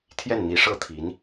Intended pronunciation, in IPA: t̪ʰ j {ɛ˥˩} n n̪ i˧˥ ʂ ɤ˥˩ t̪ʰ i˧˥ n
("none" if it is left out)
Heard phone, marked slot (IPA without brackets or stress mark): ɛ˥˩